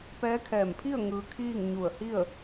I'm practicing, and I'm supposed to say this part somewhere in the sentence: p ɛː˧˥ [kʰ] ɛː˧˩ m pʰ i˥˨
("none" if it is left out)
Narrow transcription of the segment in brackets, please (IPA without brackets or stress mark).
kʰ